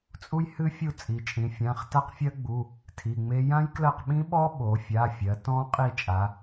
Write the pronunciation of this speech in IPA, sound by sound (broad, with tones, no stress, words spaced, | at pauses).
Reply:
t͡sʼu˦˥jhɨ˦˥fʲu˦˨ t͡sʼi˩˧t͡ʃʼĩ˩˧fʲã˩˧˩χ ta˦˥qfʲɜ˦˥ɡ͡bu˩˧˩ | tʰi˩˧˩ŋ͡me˦˥ jã˦˥jklɜ˦˨qɓĩ˦˥ɓɔ˦˥ ɓo˩˧fʲa˩˧˩fʲɜ˩˧ tɔ̃˦˥qʼi˦˨ t͡ʃʼa˩˧